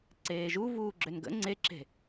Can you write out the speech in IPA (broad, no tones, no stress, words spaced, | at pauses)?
ǀeːʒu vuːɡ͡ǁønɡə̰ ŋ͡ǀeǁe̤